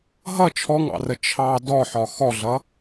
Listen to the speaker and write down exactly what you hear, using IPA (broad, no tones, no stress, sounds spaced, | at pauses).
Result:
ɦ ʌ t͡ʃʰ ɔ ŋ ɑ̰ r ə t͡ʃʰ ɑ d ɔ ħ ɒ x ɔ ɮ ʌ